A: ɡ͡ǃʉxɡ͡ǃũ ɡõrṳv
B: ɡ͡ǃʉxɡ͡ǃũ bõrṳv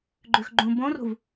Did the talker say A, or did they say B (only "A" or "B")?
B